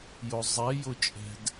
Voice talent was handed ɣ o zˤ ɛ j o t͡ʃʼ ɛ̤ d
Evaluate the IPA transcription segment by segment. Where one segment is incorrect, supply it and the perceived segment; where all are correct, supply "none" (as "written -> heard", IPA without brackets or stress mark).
ɣ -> j